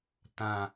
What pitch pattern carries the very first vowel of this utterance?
falling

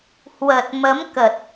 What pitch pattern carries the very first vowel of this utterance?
low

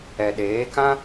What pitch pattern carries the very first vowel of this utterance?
low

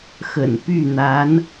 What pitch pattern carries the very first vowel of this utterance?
low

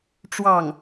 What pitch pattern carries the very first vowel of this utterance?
falling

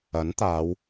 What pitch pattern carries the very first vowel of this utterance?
rising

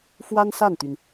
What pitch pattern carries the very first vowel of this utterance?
high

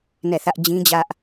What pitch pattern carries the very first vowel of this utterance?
falling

